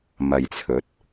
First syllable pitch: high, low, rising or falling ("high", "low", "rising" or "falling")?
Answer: low